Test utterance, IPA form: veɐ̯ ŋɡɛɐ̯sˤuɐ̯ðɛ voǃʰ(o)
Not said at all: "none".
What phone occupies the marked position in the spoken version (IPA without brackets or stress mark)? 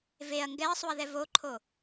o